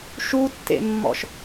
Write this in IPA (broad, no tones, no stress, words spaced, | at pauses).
ʃutːḛmːɔ̰ʃ